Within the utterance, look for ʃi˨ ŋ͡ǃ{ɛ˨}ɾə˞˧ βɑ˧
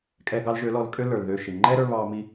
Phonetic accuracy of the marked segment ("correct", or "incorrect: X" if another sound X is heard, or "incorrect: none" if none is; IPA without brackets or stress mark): incorrect: ɛ˦